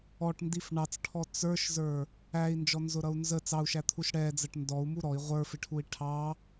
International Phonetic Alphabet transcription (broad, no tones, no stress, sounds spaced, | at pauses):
ɔ ʈ n d i f ɳ ɑ t͡s ʈʰ ɔ t͡s ə˞ ʃ z ə˞ | æ i̯ n d͡ʒ ɔ n z ʊ ɾ ʌ u̯ n z ə t͡s ɑ u̯ ʃ æ t̪ʰ u ʃ ɽ ɛ d͡z ə ʈ n d ɔ u̯ m u ɾ ɔ i̯ ʁʷ ə˞ f ɪ ʈʰ u i̯ ʈʰ ɑ